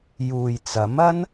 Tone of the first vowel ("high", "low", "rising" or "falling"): low